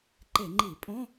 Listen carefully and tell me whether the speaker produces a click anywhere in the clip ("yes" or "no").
yes